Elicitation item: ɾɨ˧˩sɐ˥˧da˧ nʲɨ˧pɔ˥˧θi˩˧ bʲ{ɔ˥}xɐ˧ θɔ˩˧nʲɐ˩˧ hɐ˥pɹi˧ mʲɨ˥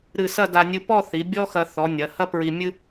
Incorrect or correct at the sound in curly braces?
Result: correct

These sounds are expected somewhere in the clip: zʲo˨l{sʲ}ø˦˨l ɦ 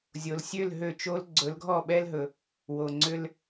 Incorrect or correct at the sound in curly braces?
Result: correct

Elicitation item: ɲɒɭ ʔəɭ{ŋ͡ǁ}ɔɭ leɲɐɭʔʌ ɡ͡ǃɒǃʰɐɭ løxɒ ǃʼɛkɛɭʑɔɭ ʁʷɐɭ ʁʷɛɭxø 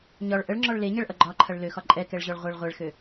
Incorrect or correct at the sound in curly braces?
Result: correct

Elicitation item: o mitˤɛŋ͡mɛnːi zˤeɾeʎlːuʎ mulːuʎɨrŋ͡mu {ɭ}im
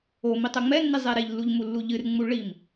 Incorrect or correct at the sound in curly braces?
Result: correct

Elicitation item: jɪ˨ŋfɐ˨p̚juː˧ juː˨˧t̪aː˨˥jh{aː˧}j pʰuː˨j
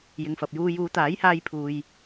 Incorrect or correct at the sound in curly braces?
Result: correct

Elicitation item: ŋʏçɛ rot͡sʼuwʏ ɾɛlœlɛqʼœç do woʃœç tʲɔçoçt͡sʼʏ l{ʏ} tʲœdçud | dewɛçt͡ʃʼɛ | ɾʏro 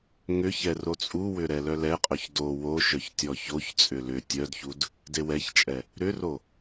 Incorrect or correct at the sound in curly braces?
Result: correct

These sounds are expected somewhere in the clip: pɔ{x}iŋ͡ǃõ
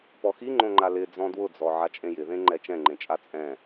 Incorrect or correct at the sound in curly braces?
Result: correct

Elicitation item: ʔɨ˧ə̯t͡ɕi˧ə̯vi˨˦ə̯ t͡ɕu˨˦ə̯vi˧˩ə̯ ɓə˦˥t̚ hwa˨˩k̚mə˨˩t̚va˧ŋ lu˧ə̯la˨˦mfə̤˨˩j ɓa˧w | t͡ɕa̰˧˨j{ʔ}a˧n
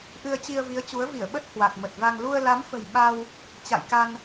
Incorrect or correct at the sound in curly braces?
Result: incorrect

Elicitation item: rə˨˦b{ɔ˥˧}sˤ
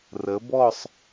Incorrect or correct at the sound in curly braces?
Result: correct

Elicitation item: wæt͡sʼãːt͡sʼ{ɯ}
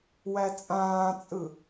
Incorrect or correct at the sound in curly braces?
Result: correct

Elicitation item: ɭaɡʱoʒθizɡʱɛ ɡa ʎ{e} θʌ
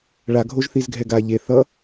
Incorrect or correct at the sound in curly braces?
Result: correct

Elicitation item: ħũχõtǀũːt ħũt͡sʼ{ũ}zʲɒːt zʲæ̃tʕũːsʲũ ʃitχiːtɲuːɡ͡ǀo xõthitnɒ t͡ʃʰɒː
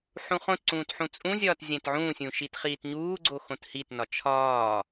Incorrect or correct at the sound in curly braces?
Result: correct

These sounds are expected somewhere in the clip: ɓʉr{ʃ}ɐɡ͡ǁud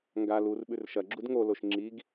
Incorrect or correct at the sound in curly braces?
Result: correct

